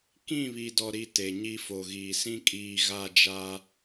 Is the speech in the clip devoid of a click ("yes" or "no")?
yes